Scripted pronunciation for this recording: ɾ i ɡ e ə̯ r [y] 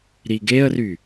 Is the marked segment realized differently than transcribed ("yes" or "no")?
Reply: no